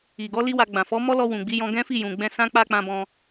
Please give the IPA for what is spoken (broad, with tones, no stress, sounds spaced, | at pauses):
i˨ ɡ ɔ˨˦ l i˦ w a˧ ɡ͡b ã˨ f ɔ˨˦ m ɔ˦ l ɔ˧ w ũ˨ ɡ͡b i˨˦ j ɔ̃˧ ɡ ɛ̃˦ f i˦˨ j ũ˨ ɡ͡b ɛ̃˧ s ã˦ k͡p a˦ k͡p ã˧ b ɔ̃˧